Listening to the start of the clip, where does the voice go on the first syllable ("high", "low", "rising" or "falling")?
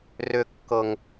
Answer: low